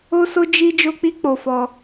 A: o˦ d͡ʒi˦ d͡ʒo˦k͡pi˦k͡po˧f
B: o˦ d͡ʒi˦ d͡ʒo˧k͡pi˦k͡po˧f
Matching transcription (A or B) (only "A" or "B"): A